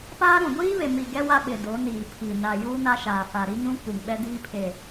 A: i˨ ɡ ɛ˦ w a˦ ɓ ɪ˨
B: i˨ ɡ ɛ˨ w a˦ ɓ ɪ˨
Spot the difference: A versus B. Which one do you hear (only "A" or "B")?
A